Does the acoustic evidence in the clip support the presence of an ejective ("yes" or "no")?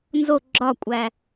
yes